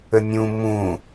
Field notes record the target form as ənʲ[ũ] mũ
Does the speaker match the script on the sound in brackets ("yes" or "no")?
yes